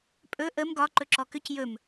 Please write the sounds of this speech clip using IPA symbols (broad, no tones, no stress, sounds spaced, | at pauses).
pʼ ɵ ʔ ə m ɡ ɒ ǃ ɵ ǁ ɔ k ʏ c j ɵ m